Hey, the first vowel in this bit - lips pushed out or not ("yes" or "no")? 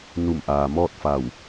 yes